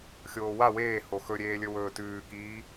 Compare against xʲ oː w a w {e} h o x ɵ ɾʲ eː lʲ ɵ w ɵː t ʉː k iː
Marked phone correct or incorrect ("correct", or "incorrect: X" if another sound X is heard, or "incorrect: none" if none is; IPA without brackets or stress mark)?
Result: incorrect: eː